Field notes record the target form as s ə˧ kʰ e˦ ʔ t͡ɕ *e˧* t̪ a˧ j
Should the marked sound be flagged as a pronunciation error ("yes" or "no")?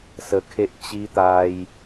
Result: yes